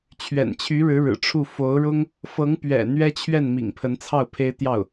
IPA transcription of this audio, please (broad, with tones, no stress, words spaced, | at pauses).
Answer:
t͡ɕʰɥɛ̰˨˩nt͡ɕʰy˧˥ɻɻ̩˧˥ ɻɻ̩˨˩ʈ͡ʂʰu˥˩ fo˧˥ʊ̯ɻʊ˥ŋ | fɤ˧˥ŋpɥɛ̰˨˩ n̪ɥɛ˥t͡ɕʰɥɛ˥˩n mḭ˨˩ŋpʰə˧˥nt͡sʰɑ˥˩ʊ̯ pʰe˥ɪ̯t̪jɑ˥˩ʊ̯